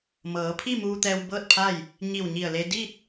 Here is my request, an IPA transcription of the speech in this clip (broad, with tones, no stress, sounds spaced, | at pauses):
m ɤː˩˧ pʰ i˥˨ m uː˧ t̪ ɛː˧ w b ɤː˥˨ t̚ pʰ a˥˨ j | ɲ i˧˩ w ɲ i˧˩ ə̯ l e˧ d i˥˨ t̚